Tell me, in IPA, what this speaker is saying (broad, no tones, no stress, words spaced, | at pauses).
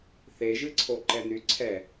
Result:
θeʒɨǀʰoǃɛ nyǀʰɛ